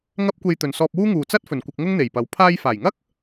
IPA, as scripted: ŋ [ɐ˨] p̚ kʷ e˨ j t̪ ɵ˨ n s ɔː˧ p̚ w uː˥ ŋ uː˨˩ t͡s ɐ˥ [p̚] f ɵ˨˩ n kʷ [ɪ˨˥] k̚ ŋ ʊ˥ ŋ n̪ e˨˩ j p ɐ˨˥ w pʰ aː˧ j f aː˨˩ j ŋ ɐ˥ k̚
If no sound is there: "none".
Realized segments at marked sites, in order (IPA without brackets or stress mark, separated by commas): ɐ˧, t̚, ɪ˧